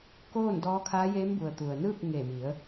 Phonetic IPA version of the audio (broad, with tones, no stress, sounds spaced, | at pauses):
k oː˥˨ n d ɔː˧˥ kʰ aː˧˥ j eː˧˥ m b u˩ ə̯ t̪ u˩ ə̯ n ɯː˥˨ k̚ ŋ eː˧˩ m i˩˧ ə̯